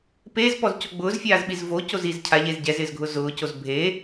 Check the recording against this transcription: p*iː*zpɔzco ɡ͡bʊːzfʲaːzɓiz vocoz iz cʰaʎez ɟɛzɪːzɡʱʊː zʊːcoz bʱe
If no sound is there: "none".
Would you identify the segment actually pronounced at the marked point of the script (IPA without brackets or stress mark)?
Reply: eː